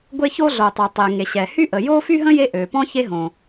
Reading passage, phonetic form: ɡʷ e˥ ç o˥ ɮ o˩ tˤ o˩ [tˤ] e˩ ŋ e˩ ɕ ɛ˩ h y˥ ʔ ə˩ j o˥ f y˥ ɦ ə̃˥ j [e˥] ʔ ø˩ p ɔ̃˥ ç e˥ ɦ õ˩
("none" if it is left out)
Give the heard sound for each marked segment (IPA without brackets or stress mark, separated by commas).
tˤ, e˥